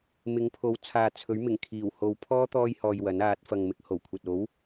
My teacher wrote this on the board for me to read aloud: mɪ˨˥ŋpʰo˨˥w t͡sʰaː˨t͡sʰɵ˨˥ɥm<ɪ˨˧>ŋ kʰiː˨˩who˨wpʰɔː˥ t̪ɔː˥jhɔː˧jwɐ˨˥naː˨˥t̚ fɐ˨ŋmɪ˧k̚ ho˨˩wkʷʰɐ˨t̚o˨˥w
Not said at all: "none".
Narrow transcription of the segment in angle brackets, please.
ɪ˨˩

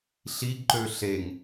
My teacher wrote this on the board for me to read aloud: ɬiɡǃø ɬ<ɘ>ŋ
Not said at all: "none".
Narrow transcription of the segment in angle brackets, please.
e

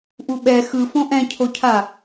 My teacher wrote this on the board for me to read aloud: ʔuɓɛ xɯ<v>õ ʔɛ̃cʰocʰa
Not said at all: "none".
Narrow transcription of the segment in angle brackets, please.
f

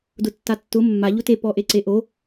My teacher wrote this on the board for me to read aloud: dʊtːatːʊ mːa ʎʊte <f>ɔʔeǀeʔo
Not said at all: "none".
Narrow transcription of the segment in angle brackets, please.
p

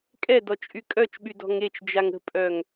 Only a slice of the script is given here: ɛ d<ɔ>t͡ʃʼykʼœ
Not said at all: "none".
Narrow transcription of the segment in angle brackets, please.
ɔ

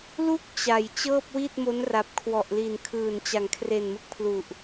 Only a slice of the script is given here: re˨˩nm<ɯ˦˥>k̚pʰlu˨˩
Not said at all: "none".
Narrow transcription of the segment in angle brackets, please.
ɯ˦˥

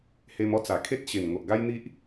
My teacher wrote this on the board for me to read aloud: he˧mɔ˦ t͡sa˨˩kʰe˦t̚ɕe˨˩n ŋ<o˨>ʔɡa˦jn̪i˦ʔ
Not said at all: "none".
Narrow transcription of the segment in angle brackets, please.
o˨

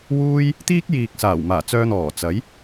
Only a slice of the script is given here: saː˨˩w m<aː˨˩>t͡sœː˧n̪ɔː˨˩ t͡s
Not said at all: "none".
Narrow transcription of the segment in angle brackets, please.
aː˨˩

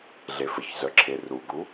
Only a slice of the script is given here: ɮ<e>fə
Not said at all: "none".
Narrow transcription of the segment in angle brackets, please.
e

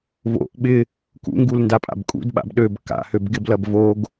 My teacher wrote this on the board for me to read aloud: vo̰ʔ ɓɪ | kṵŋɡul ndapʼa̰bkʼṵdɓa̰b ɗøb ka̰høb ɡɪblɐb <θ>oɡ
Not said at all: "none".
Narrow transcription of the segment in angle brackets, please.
v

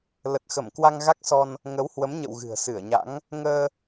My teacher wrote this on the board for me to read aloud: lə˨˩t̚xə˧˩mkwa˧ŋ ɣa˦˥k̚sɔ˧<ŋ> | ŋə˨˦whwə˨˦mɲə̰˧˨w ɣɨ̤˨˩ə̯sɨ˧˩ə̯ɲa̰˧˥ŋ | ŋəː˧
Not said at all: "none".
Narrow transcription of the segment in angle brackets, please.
n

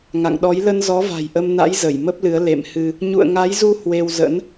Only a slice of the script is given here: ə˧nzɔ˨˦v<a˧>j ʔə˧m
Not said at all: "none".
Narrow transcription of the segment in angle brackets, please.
a̤˨˩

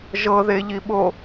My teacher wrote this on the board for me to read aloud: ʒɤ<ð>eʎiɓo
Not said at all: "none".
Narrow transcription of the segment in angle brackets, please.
ð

